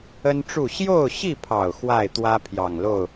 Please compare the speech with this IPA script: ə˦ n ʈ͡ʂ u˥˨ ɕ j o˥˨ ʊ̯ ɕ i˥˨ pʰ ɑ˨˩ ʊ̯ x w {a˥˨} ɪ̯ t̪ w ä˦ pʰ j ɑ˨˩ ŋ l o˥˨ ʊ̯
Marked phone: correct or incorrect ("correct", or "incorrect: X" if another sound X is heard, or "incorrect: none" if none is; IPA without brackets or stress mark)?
correct